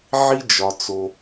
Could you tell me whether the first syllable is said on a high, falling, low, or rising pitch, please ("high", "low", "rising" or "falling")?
high